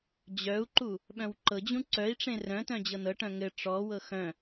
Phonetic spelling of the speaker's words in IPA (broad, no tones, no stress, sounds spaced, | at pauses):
d͡ʑ œ u̯ ǃ u | ɓ œ̃ w ǃ ɤ d͡ʑ ũ ǀ œ i̯ ʈ͡ʂ ẽ r œ̃ t œ̃ d͡ʑ ɤ n ɤ ʈ œ̃ ŋ ɘ ʈ͡ʂ ɔ w ɤ x œ̃